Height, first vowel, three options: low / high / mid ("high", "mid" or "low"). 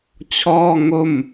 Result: mid